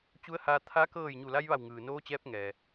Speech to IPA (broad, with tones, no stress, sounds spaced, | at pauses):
t͡ɕ u˧˥ ə̯ h aː˧ t̪ʰ a˧˥ k ɤː˥˨ j ɲ u˧˩ l a˧ j ʋ a˧˩ w ŋ ɯː˩ n oː˧˥ t͡ɕ ɛː˧˥ p̚ ŋ ɛː˩